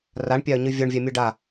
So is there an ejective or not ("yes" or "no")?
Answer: no